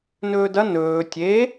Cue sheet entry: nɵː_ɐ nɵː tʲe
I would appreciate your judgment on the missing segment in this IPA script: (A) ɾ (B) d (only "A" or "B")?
B